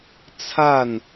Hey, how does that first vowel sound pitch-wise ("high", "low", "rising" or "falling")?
falling